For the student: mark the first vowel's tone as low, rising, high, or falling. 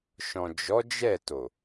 low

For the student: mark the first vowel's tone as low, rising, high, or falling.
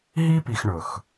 high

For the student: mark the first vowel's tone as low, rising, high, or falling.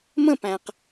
falling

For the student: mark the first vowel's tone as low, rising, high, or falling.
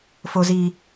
high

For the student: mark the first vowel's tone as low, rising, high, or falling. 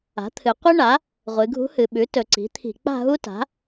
rising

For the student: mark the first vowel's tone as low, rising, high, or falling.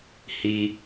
high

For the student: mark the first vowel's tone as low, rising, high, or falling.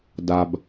low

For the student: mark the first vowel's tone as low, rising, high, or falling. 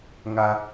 high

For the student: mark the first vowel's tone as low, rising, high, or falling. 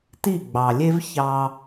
falling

